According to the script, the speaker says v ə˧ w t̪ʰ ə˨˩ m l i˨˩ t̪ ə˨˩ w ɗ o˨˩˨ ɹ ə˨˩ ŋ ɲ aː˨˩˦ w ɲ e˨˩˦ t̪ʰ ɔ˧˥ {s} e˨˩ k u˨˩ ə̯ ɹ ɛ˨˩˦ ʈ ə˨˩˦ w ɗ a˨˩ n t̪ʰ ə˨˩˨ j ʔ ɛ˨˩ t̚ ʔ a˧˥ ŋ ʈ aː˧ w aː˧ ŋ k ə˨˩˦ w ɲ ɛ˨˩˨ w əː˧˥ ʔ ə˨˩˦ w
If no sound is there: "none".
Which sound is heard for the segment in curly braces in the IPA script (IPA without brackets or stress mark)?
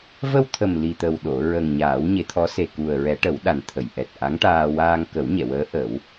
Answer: s